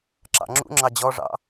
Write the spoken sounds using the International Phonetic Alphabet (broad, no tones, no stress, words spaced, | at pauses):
ǁɑ̰ŋ͡ǁṵŋ͡ǁɑ d͡ʑɔʐɑ̰